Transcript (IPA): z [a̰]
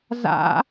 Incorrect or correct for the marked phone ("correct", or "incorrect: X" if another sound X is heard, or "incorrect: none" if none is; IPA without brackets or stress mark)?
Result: correct